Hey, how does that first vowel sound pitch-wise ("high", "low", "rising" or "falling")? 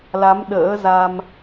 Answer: rising